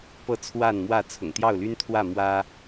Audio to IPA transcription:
pɤ˨˦ t͡sʰwa˥˨nmwä˥˨ t͡sʰʊ̰˨˩ŋt̪jɑ˥˨ʊ̯ly˦nt̪ʰwä˥˨ mwä˦

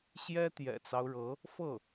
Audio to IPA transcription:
ɕjɛ˥ t̪jɛ̰˨˩t͡sɑ˦ʊ̯ɻɤ˧˥ | fɤ˥˩

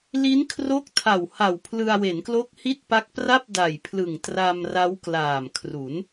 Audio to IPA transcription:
li˦˥nkʰro˦˥k̚tʰa˨˩w ha˨˩wpʰlɯ˧a̯we˩˦nklo˦˥k̚ hi˥˩t̚pa˦˥k̚pra˥˩p̚ da˨˩jpʰlɯ˨˩ŋtra˧m ra˦˥wklaː˨˩mkʰru˩˦n

